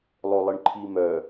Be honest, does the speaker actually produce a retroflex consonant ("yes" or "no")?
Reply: yes